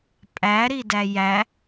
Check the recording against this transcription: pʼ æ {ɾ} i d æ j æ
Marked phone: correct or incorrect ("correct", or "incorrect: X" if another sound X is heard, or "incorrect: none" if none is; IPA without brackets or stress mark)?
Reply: correct